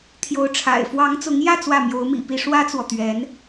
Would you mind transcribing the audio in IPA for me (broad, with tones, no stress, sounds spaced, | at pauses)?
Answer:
t̪ʰ j o˧˥ ʊ̯ ʈ͡ʂʰ a̰˨˩ ɪ̯ f w ɑ˧˥ ŋ t͡s ʊ˧˥ ŋ j ä˥˧ t͡s w ä˥˩ m j o˧˥ ʊ̯ m ḭ˨˩ p i˥˩ ʂ w ä˥ t͡s w ɔ˨ t̪ ɥ ɛ˧˥ n